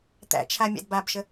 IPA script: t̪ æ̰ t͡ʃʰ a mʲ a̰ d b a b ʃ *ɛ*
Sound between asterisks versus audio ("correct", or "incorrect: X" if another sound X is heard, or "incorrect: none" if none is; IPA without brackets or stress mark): incorrect: ə